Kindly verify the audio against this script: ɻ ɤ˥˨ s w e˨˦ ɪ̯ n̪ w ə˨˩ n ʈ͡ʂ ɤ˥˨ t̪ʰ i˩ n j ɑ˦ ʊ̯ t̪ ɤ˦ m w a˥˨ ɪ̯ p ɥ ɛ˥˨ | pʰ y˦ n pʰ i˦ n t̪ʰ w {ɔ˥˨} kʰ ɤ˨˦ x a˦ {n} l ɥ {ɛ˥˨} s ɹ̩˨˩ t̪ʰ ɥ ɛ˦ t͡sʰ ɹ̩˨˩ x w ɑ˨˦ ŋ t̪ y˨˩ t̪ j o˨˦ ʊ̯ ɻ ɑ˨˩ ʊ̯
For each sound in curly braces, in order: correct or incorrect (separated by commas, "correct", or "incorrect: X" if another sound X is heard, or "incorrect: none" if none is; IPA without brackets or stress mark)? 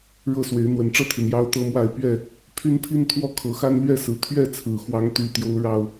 correct, correct, correct